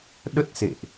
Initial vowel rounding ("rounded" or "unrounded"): unrounded